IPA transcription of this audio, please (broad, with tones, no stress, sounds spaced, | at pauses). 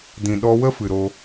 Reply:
d ĩ˨ ɗ ɔ˧ w ə˦ f ɨ˨ ɾ o˧